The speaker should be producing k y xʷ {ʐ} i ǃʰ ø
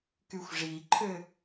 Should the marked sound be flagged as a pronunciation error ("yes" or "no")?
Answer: no